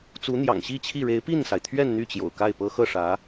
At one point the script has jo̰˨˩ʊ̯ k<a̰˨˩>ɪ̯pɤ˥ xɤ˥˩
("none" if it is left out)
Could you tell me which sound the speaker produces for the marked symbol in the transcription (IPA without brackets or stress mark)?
a˥˩